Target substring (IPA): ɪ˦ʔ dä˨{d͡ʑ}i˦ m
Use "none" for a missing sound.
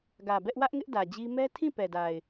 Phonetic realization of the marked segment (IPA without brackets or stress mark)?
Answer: d͡ʑ